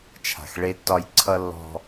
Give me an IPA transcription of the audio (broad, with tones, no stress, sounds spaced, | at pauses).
t͡ʃʰ a̤˨ x ɭ e˦ tː ɒ˦ j ǀʰ ʌ˦ lː ɔ̤˦